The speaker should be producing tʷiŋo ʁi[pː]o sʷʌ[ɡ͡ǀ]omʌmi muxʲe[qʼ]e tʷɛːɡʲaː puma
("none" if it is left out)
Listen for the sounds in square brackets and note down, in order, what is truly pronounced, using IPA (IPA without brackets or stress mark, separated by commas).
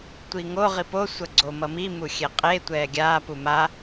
p, ɡ͡ǀ, qʼ